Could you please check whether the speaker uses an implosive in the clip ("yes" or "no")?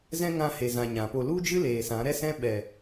yes